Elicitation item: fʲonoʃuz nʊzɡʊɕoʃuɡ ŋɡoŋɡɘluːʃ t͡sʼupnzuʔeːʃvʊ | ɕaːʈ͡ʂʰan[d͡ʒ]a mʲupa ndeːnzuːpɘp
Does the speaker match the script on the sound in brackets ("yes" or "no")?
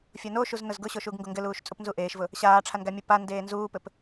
no